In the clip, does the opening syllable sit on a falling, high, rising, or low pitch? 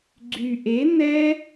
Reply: low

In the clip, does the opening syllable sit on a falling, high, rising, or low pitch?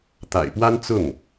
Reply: low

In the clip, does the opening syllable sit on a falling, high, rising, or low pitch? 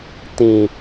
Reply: low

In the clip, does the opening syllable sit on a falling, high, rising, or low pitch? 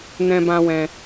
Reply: high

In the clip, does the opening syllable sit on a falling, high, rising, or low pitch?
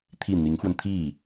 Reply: falling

